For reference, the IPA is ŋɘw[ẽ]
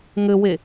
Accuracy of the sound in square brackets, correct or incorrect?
incorrect